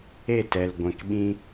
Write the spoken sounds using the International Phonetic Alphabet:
e˦˨ t ɛ˨ l ɡʷ ɛ̃˨ k ɓ ĩ˧

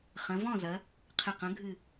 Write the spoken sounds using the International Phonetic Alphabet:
χ ɐ̃˩˧ v ɔ̃˥˩ z ɐ˩˧ | qʰ ɘ˨˩ q ɐ̃˩˧ ɡʱ ɨ˨˩

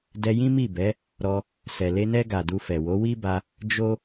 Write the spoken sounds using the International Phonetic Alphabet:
d ɛ˧ j ĩ˦ m i˦˨ b ɛ˨˦ | ɾ ɔ˧ | s ɛ˨ l e˧ n ɛ˧ ɡ a˨ d u˧ f ɛ˨ w o˨˦ w i˦ b a˧ | d͡ʒ o˦

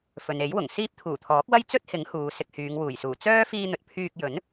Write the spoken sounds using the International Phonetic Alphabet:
f ɵ˨ n e˨˥ j w ʊ˨˩ ŋ s iː˥ p̚ t̪ʰ uː˨˩ t̪ʰ ɔː˨˥ k̚ w ɐ˥ j t͡s ɵ˥ t̚ h ɪ˨˥ ŋ h uː˨ s ɪ˧ k̚ h yː˨˧ ŋ w uː˨˩ j s uː˨˩ t͡s œː˥ f iː˧ n̪ ɵ˨ t̚ pʰ yː˧ k̚ j ɵ˨˥ n

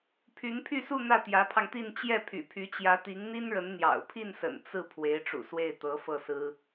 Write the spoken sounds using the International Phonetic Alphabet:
pʰ y˧˥ n pʰ y˥˧ s u˥˧ n̪ ä˥˩ t̪ j ä˧˥ pʰ ɑ˧ ŋ t̪ i˥˧ n t͡ɕ j ɛ˥˩ pʰ y̰˨˩ pʰ y˧˥ t͡ɕ j ä˧˥ t̪ i˧˥ ŋ n̪ i˥ n ɻ ə˧˥ n n̪ j ɑ̰˨˩ ʊ̯ pʰ i˥˩ n s ə̰˨˩ n t͡s ɹ̩˥˩ pʰ w e˧˥ ɪ̯ ʈ͡ʂ ṵ˨˩ s w e˥˩ ɪ̯ t̪ ɤ˧˥ f ɤ˥˩ s ɹ̩˥

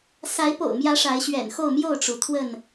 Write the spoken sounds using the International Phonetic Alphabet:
s a˨˦ ɪ̯ p o̰˨˩ ʊ̯ m j ä˨˦ ʂ a˨˦ ɪ̯ ɕ ɥ ɛ̰˨˩ n x o˥˨ ʊ̯ m j o˥˨ ʊ̯ ʈ͡ʂ u˩ t̪ʰ w ə˥˨ n

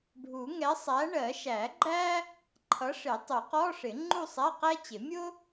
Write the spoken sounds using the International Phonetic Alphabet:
ɖʱ u˨˩˦ ŋ ɛ˨˥ sˤ æ˨˥ ɳ ɜ˨˩˦ ʃ æ˨˩˦ ɡ͡ǃ æ˥ | ǃʰ ʌ˨˥ ʂ ɪ˨˩˦ tˤ u˨˩˦ q ɔ˧˥˧ ʂ ɪ˨˩˦ ŋ͡ǃ u˥˧ sˤ æ˧˥˧ q æ˥ t͡ɕ ɪ˨˩˦ mʲ ʊ˥

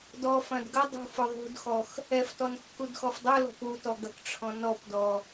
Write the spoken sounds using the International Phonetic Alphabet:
d ɔ f ɐ̃ d ɡ ɐ dˤ ṳ f ʊ ðˤ ṳ d x ɔ x | ɛ f t ɔ n kː u d x ɔ f dˤ ʊ l ɔ̤ p u t ɔ ɡ ɐ k ʈ͡ʂʰ ɔ̃ n ɔ p d ɔ

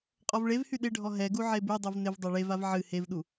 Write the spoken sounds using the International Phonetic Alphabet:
qʼ ɔ v ɭ e v h y ɗ ɪ ɖʱ ɔ ɦ ɛ ɡ u ʕ e b y dˤ u v n ɪ v dˤ a ɭ e v a v ʕ ɨ h e v ɗ u

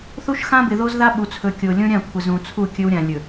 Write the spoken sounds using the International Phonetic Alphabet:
θ u˦ ʃ x ã˦ b ɪ˨ ð o˦ z ð a˦ ɓ u˨ t͡sʰ ɵ˨ kʲ o˨ lʲ õ˦ ɾʲ ã˦˨ kʷʰ ɪ˨ z ũ˨ t͡sʰ u˦˨ kʲ ɵ˦ w ɾʲ ã˨ lʲ ɵ˨

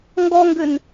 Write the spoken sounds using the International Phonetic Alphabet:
ŋ ɡ ɔ ŋ ɡ ʏ n

